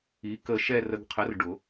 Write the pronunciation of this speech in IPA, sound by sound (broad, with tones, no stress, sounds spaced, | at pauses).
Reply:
i˨˥ k ə˧ ʃ ɛ˥˧ r ə˧ ɡ qʰ ə˨˥ r ɖ ʊ˨˩˦